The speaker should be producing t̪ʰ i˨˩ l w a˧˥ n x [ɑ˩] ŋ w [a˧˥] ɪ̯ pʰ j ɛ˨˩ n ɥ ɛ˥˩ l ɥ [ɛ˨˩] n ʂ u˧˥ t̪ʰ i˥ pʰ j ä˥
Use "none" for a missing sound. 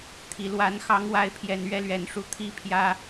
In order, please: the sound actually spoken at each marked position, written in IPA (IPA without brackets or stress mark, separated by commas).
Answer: ɑ˧˥, a˧˥, ɛ˨˩